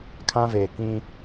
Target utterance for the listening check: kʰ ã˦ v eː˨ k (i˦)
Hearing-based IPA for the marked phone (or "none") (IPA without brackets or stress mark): ĩ˦